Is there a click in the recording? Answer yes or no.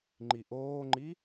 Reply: yes